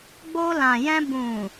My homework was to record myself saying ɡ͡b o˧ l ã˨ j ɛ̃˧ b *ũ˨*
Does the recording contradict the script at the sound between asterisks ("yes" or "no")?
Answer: no